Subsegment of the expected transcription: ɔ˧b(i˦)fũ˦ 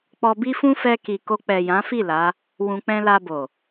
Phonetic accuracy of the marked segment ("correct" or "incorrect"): correct